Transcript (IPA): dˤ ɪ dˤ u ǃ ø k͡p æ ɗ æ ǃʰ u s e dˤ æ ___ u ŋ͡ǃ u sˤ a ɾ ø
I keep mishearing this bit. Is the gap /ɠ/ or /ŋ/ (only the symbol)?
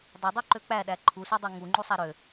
ŋ